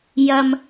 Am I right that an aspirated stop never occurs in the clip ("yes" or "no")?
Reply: yes